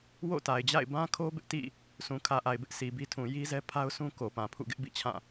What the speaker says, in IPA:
w o̰˦˨ t a˨ ɪ̯ d͡ʑ a̰˦˨ ɪ̯ b ã˦ kʰ o˦ b ɪ˦ ʔ t ḭ˦˨ | sʰ ũ˨ kʰ ä˨ ʔ a˨ ɪ̯ b ɪ˦ ʔ s i˨ b i˦ tʰ ũ˨ j i˦ z ɛ˦ pʰ a˦ ʊ̯ sʰ ũ˦ k o˨ p ã˨ pʰ ṵ˦˨ ɡ ɪ˦ ʔ b ḭ˦˨ t͡ɕʰ ã˦˨

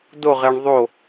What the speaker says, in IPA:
d o ʁ e ɳ ðˤ o

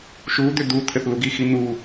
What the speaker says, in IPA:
ʃ u d̪ ʏ d̪ u t̪ʰ ɘ θ l u ɡ i x i n̪ u

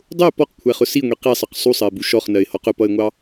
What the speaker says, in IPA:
dˤ ʊ ɪ̯ p ɔ q kʷʰ æ χ ʊ s i ŋʷ i q i sˤ ʌ q sˤ u sˤ ɜ ɪ̯ b u ʃ ɔ χ n ɜ ɪ̯ h ɔ q ʊ p ʌ ɪ̯ ŋʷ ɑ

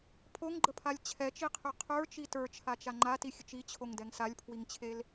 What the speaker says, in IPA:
pʰ o ŋ ɡ͡ǃ ə pʰ a lʲ t͡ɕʰ ɛ t͡ʃ i qʰ ʏ qʰ ə˞ t͡ʃ i t ə˞ t͡ʃʰ a t͡ʃ a ŋ͡ǃ a t i xʲ ə t͡ʃ i t͡ɕʰ o ŋ d ɛ ŋ s a lʲ pʰ w i ŋ t͡ɕʰ e l

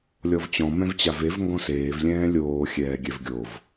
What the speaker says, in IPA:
lʲ ɔ v t͡ɕ ɔ̃ m ɛ̃ v t͡ɕ a v e v ŋ ɡ ɔ̃ s eː v lʲ ɛ̃ː lʲ oː xʲ ɛː ɡʲ ɛ v ɡʲ o v

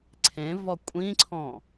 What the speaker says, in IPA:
ǀʰ ẽ v ɔ kʷʼ ĩ ǀʰ ɔ̃

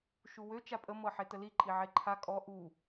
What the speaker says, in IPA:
ʃ u w ø t͡ʃ a pʼ ə m ɤ ħ e t ə l i ǃʼ i ʕ e ǃʰ a kʼ ɔ ʔ u

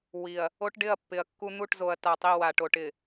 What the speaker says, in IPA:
w i˨ ɐ̯ | o˦ ʈ ɖ ɪ˦˨ ɐ̯ pː ɪ˨ ɐ̯ kː u˦ n̪ u˦˨ ʈ z o˨ ɐ̯ t a˨ tˤ i˦˨ w a˨ ʈ o˨ ʈ ɪ˨

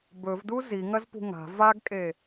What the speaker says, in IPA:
b ɵ v d u z i ŋ ɐ z p ṳ ŋ a̤ v a ɡ kʼ e

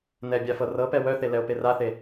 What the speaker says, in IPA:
n ɛ bʲ a f ɤ r ɤ p ɛ w œ θ e l ɛ o̯ p e r a θ e

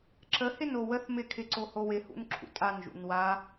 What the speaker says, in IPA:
ǁ ə h ɪ n o w ə θ m ɪ kʰ ɪ ǀ o h o w ɪ h ṵ n ǁʰ ṵ tʼ a n ʒ ṵ n w a

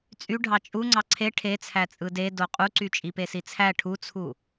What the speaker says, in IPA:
t͡sʼ y ɖʱ ɑ t͡ʃʼ u ŋ͡ǀ ɑ ǀʰ e ʈʰ e t͡sʰ æ t͡sʼ ɯ d e d o qʼ u ǀ y t͡ʃʼ i p e s i t͡sʰ æ ʈʰ u t͡sʰ u

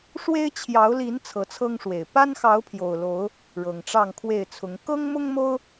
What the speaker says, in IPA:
ʂ w e˦ ɪ̯ t͡ɕʰ j ɑ˨˦ ʊ̯ l i˨˦ n t͡sʰ ɤ˨˦ t͡sʰ ɤ˦ ŋ ʂ w e˨˩ ɪ̯ p a˦ n x ɑ˨˦ ʊ̯ pʰ j o˨˩ ʊ̯ l o˨˦ ʊ̯ | ɻ ɤ˨˩ ŋ ʈ͡ʂ ɑ˥˨ ŋ kʰ w e˥˨ ɪ̯ t͡sʰ ʊ˨˦ ŋ k ɤ˦ ŋ m ʊ˦ ŋ m o˦ ʊ̯

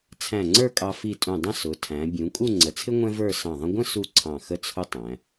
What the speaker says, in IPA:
t͡sʰ æ̃˧˩ ŋ͡ǀ ə˞˥˧ kʼ ɑ˧ f i˧˩ tʼ ũ˧˩ dˤ ə̃˥˧ s ʊ˩˧ tʰ æ̃˩˧ bʲ ũ˩˧ kʼ u˥˧ ŋ͡ǀ ə˩˧ t͡sʰ ɪ˥ ŋʷ ɛ̃˥ v ə˞˥˧ s ɑ̃˧˩ ðˤ ə̃˧ ɡʷ ə̃˥˧ s u˥˧ ǀʰ ɑ̃˧˩ x ə˥ t͡sʰ ʊ˥ tˤ æ̃˩˧

